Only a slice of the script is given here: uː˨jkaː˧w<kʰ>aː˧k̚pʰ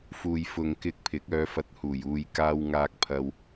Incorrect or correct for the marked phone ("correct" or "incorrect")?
incorrect